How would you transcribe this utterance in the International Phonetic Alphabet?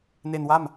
n e˧ n w a˥˩ m

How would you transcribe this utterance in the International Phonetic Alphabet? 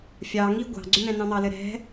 fʲ ɑ ŋ i ɡʷ ɑ̤ ɡ͡ǀ ʏ n̪ ɛ̃ n ɑ̃ n̪ ɑ l ɘ ɾ ɛ̤

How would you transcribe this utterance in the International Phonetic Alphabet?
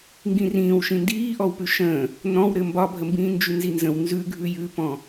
ŋ ɡ ĩ r ĩː w ʃ ĩ n d iː ʔ ɔ w p ʉ ʃ ə̃ː | n ɔ̃ w ɾ ɘ m b ɒ bʱ ə m b ĩː n d͡ʒ ʉ n z i n z ə̃ w n z ʉ ɡʱ ʉ j ʉ p ɔ̃

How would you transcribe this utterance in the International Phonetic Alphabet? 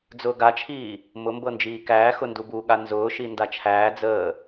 d͡z ʊː ɡ a t͡ʃʰ iː | m ʊ m b ɤ n d͡ʒ iː k æː x ʊ n d u b u ɠ a n z ʊː ʃ i n d a t͡ʃʰ æː d͡z əː

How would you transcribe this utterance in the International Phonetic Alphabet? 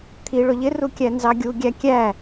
t̪ʰ i ɭ ʊ ʎ ɪ r u kʲ æ n z ɑ ɡʲ u ɡʲ æ kʲ æ

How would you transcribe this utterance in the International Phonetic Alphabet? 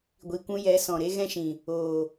ɡʷ i˨ kʷ ũ˧ j ɛ˨˦ s ɔ̃˨ ɾ e˦ ɣ ɛ̃˦ ʃ ĩ˨ | oː˨

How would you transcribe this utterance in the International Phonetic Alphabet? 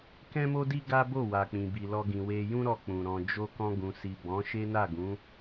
k ɛ̃˦ m o˦ d i˦ ɡ a˦ b o˦˨ w a˨ k͡p ĩ˨ b i˨ l ɔ˧ ɡ ĩ˨ w e˧ j ũ˦ ɾ ɔ˧ k͡p ũ˨ ɾ ɔ̃˨ d͡ʒ o˧ k ɔ̃˧ ɡ ũ˨ s i˨ b ɔ̃˨˦ ʃ e˦ n a˦˨ ɡ ũ˨˦

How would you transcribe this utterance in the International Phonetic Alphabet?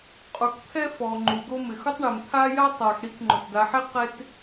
qʼ u˨ k pʰ ɛ˥ f ɔ˨ ŋ͡ǃ u˨ ɡ o˦ m ɪ˨ x ʊ˥ tˤ ɳ e˨ m t̪ʰ a˥ j a˥ tˤ a˨ x ɽ i˥ k ŋ͡ǃ ʊ˩ t d a˨ ħ e˦ q e˥ t

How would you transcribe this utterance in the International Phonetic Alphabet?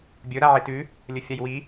bʲ ɵ ɾ a ʕ i t ʉ | lʲ ɵ fʲ a j w i

